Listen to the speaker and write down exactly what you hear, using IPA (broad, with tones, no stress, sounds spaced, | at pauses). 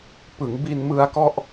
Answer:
p ɯ˩˦ ŋ b i˧ n m ɯ˧ a̯ k ɔ˥˩ ʔ